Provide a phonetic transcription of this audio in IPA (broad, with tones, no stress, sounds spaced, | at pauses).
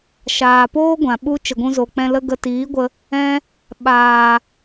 ʃ aː˨ p oː˦ ɡʷ ã˨ ɓ u˦ t͡ʃ ə˨ ɡʷ ũ˧ z o˨ k͡p ɛ̃˧ l ə˧ ɡ ə˧ t iː˨˦ ɡʷ ə˧ | ɛ̃˧ | ɓ aː˨